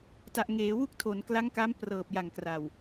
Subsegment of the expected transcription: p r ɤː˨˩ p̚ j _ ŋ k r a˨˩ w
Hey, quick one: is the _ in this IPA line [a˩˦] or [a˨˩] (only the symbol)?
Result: a˨˩